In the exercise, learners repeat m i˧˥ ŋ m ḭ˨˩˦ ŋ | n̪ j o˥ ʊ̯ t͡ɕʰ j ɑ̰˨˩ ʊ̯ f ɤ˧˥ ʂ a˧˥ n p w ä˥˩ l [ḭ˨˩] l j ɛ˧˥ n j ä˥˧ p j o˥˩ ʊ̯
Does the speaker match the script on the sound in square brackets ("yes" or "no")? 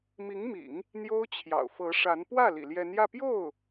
yes